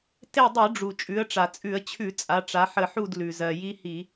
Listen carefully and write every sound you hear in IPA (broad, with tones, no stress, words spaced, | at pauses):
te˦˨dˤʉ˧˩˧ɖ͡ʐu˩ t͡ʃʼʉ˩˧ə̯ʈ͡ʂa˩t͡sʼʉ˧˩˧ə̯ t͡ɕʰʉ˧˩˧ t͡sʼa˩˧ʈ͡ʂa˩˧ħə˧˩˧ħu˦˨d lʉ˩ zɜ˩ji˦hi˧˩˧